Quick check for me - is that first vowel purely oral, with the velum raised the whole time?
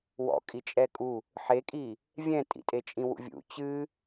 yes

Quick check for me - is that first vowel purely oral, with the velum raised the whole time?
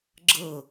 yes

